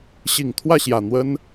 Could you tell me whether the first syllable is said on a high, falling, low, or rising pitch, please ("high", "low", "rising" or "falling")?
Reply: low